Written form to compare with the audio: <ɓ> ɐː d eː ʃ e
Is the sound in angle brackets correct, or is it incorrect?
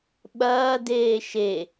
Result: correct